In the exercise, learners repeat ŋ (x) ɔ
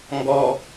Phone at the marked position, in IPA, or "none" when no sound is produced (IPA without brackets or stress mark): ɡ